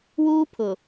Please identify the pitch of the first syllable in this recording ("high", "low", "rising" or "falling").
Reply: high